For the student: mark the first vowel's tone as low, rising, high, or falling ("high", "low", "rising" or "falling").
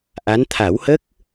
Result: rising